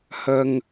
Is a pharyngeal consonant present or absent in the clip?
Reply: absent